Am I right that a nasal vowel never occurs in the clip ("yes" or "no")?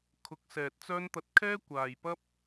yes